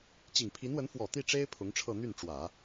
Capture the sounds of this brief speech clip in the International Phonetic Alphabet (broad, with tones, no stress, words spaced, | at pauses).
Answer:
t͡ɕi˨˩ŋpʰi˧˥nwə˧˥n fwɔ˨˩t̪i˥˩ʈ͡ʂe˥ɪ̯ pʰʊ˧˥ŋʈ͡ʂʰɤ˥˧ n̪y˥˩nʈ͡ʂwä˨˩˦